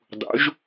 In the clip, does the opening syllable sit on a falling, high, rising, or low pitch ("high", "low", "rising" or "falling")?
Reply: rising